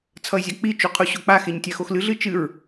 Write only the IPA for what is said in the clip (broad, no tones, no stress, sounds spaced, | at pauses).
t͡sʰ ʌ ɪ̯ zʲ a k͡p i t͡ʃ u qʰ u ɕ o k͡p a x e ɲ tʲ a x o x l ɨ ɮ ɨ t͡ʃ ɨ ɹ